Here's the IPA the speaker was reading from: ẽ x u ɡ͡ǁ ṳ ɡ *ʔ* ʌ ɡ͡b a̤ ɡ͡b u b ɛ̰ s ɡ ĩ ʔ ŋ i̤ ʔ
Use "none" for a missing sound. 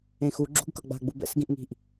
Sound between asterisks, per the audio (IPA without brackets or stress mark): k